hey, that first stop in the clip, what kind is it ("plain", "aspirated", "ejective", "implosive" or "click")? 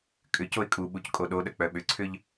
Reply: ejective